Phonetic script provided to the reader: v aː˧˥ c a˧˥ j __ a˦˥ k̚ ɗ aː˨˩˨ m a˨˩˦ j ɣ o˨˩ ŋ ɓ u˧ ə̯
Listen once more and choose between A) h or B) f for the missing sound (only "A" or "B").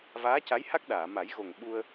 A